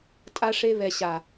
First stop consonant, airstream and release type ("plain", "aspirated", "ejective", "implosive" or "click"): ejective